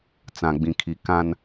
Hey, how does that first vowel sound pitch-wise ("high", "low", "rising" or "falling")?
low